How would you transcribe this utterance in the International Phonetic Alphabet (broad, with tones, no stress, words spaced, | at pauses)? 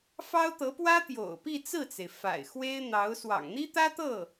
fɑ˥ʊ̯t̪ɤ˧˥pwä˥ t̪jo̰˨˩ʊ̯ pi˥˧t͡sɹ̩˥˩t͡se˩ɪ̯ fa̰˨˩ɪ̯ xwe˥ɪ̯n̪ɑ˧˥ʊ̯ swɑ̰˨˩ŋn̪i˥t̪ä˥ t̪ɤ˥˩